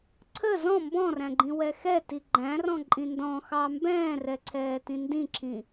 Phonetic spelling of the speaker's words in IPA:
ǀʰ ə z ɔ̃ m b ɔ̃ r æ̃ ɡ͡ǃ ĩ w ɛ x ɛ t i ɡ͡ǃ æ̃ r ɔ̃ ǃʼ ĩ n d ɔ̃ x ɑ m b ɛ̃ː r ɛ ǀʰ ɛː t ĩ n d ĩ ǁʰ ĩ

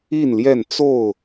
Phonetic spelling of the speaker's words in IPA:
i˥˨ n l j ɛ˥˨ n t͡s o˥˨ ʊ̯

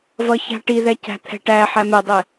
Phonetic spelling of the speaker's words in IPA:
v ʌ ç a̤ ʈ i ð ɛ c æ̤ t̪ʰ ɛ̤ ʈ æ ħ æ m ɛ dˤ ɛ

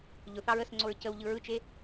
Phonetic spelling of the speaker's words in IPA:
ʎ ʊ θ ɑ ɹ ə s ŋ͡ǀ o ɹ c ə w ʎ ɯ ɹ ɯ t͡ʃ e

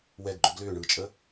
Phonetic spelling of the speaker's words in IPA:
w ɛ ɡ ɡ͡ǃ ʏ ɡ l ʏː ɳ ɯː t͡ʃʼ ə

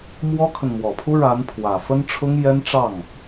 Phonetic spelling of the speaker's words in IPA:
m w ɔ˥ kʰ ə˨ n m w ɔ˨˩ pʰ u˥ ɻ a˧˥ n pʰ w ä˨˩ f ə˥ n ʈ͡ʂʰ ʊ˥ ŋ j ɛ˥ n ʈ͡ʂ ɑ˥˩ ŋ

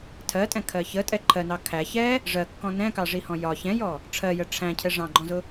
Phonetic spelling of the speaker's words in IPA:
tʰ ɜ tʼ ɛ̃ kʰ ɜ ç ə tʼ ɛ ǃʰ ɜ n ɑ kʰ æ ç ɛ | ʐ ɜ kː ɔ̃ n ɛ̃ k ɑ ʐ i h ɔ̃ j ɒ ç ɛ̃ j ɔ | ʈ͡ʂʰ ɜ j ə ʈ͡ʂʰ æ̃ cʰ ɛ ʐ ɑ̃ ɡ͡ǃ ɔ̃ z ʊ

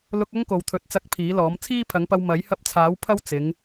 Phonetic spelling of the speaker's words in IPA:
l ʊ˧ k̚ ɐ˥ ŋ k o˨ w t̪ʰ ɵ˨˥ t̚ t͡s ɐ˧ k̚ pʰ iː˨˥ l ɔː˨˥ m t͡sʰ iː˥ pʰ ɐ˨˥ ŋ p ɐ˧ w m ɐ˨˥ j h ɐ˧ p̚ t͡sʰ aː˨˥ w pʰ ɐ˥ w t͡s ɪ˨˧ ŋ

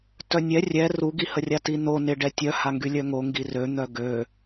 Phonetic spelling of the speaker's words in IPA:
t œ nʲ ɛ rʲ ɛ r u ɡ i h ə rʲ a t i n o n ɪ ɖ ɛ tʲ œ h a ŋ ɡ y lʲ œ ŋ o ŋ ɡ i r ø n̪ œ ɡ ø

